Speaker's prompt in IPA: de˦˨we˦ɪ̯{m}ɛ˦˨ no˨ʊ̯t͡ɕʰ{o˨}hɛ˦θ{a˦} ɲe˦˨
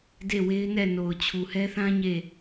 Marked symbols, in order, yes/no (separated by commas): no, no, no